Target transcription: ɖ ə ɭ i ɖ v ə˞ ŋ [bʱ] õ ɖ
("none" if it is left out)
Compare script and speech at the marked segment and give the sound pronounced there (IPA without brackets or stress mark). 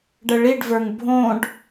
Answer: bʱ